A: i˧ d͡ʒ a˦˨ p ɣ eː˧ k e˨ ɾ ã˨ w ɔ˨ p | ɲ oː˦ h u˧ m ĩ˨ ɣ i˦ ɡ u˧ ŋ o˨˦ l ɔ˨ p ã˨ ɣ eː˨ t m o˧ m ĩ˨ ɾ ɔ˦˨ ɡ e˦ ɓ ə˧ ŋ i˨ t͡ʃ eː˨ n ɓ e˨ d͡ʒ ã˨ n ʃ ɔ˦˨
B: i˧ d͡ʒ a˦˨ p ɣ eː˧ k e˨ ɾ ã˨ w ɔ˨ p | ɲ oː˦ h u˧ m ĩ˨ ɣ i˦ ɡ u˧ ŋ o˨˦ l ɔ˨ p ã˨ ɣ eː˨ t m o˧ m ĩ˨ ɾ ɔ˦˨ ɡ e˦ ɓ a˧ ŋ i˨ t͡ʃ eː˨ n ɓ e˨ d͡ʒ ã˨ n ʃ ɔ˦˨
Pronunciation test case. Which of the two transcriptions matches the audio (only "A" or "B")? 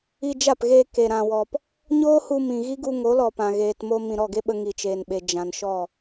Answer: A